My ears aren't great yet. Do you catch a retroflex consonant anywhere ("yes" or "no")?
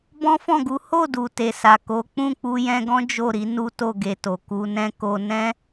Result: no